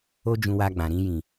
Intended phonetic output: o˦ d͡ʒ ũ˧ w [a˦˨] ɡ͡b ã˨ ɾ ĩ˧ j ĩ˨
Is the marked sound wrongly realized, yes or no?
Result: yes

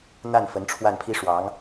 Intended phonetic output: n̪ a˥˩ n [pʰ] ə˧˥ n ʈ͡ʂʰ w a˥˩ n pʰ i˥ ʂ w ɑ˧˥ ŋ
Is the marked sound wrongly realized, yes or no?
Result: yes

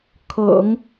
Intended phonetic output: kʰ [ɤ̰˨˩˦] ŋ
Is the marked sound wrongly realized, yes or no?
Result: no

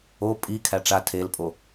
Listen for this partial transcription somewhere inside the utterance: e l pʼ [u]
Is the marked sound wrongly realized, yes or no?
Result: yes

